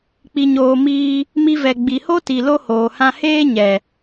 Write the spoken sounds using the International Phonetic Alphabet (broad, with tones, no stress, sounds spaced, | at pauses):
k͡p i˨ ɲ oː˨ m iː˧ | m i˧ v ɛ˨ ɡ͡b i˨ h o˦ t i˨ l o˦ h oː˨ h ã˦ h eː˦ ɲ ɛ˨